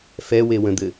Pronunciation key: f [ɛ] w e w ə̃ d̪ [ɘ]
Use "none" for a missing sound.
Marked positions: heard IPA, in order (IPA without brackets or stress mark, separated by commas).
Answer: ɛ, ɘ